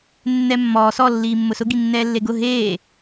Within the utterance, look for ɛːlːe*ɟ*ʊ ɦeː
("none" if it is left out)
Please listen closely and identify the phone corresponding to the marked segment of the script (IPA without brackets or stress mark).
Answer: ɡ